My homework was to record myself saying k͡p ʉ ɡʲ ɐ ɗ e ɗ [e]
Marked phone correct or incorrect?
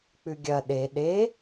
correct